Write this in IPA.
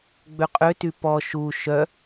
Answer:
ɡ͡bøqʼøty pɔ ʃu ʃœ

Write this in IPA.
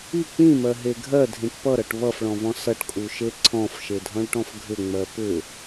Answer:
i k͡pĩmɜɦe ɡʱɜdʱĩʈ pʌɾʌʈ βʌfɭɔ̃vɔ̃ sʌʈkʼuʃe ǀʰɔ̃fʃedʱɔ̃ɭʈɔ̃f ɡʱʏŋ͡mɜ pʏ

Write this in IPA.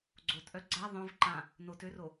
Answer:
ɡ͡ǀotʔœ ɡ͡ǀa ðˤœ̃v ǃã | notøro

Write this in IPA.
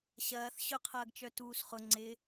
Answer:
ɕɐːθ ɕʊqʰɐːɡt͡ʃœ tuːsχʊ ŋ͡ǀɪ

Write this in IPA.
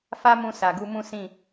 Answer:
fa˦mũ˧ sa˨ɡu˧mũ˦ sĩ˦˨

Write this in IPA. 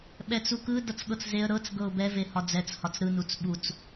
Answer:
ɓɛt͡sukɯ dʌt͡sɠɤt͡szeə̯ ɾɤt͡s ɡɤʊ̯bɛ vehɒd͡zɛt͡s hɒt͡sɾɯ nut͡sɓut͡s

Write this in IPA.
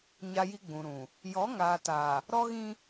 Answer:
ɲa˦ji˦ɡ͡bũ˨ɾũ˨ | jɔ˨˦ŋaː˨taː˨ | ɾɔ˦ɣĩ˦

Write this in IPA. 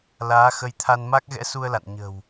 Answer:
laː˨˦xə˨˦jt̪ʰa˧n ma˦˥k̚ɣɛ̰˧˥su˧ə̯la̰˧˨n ɲə̤˨˩w

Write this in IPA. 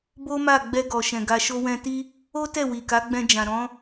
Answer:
bo˦ma˦˨ ɡ͡bɛ˧ɡɔ˨ʃɛ̃˨ ɡa˧ʃo˦ wɛ̃˧ti˦ | o˦ tɛ˦˨wi˨ka˨˦ ɡ͡bɛ̃˧d͡ʒã˨ɾɔ̃˨˦

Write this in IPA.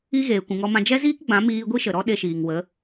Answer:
i˦ɣeː˨ kʷũ˨ŋɔ˧mã˧ d͡ʒɛ˦ziː˦kɡ͡bã˨˦ miː˦ ɡʷi˦ʃə˨ɾɔ˦ ɗe˧ʃiː˨ŋwə˨˦

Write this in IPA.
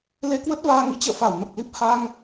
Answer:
le˧kwə˦˥t̚vaː˧ŋḭ˧˥ t͡ɕə̰ː˧˨fa˧˩wnə˨˩p̚li˦˥p̚ ha˧ŋ

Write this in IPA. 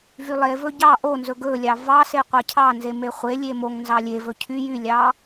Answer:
vylˠevɵ ɟɑ ʔonzɵ ɡɵlʲɑ vɑse qʷɑcʰɑnze meχʷelʲe moŋ nzɑlʲevɵ cʰy jylʲɑ

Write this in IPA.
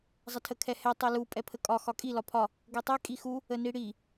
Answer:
zˤətʰəkʰɛhɛ tˤɛlu pʼɛpʰəkʼɒ xɒkʼi lɒpʰɒ | ɡɛtˤɛ kʼixu | əniɽi

